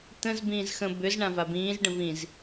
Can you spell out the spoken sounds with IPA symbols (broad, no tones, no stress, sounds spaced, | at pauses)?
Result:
t̪ ə̃ z b ĩː z x ə̃ b ʏ z ɳ ã v a b ĩː z ɖ ə̃ v ĩ z